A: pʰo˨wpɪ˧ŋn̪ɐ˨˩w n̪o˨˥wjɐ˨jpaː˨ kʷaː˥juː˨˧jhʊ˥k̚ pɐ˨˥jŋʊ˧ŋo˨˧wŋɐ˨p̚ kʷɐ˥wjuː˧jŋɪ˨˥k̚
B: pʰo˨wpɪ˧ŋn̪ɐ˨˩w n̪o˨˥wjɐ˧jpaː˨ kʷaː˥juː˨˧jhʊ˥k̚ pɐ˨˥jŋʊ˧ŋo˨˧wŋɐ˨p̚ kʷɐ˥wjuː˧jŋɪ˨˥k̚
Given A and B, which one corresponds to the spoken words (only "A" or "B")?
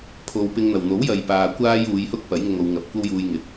A